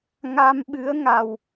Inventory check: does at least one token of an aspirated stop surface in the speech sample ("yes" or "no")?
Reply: no